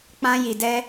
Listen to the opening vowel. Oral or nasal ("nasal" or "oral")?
nasal